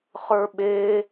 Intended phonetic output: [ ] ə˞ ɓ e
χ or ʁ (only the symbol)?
χ